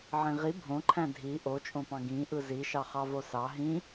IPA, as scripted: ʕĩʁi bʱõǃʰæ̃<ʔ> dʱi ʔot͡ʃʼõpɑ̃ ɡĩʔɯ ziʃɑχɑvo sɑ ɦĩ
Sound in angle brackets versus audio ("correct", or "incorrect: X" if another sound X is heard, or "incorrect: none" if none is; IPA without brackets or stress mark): incorrect: none